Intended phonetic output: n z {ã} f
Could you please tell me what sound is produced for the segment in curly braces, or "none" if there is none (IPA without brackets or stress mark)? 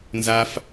a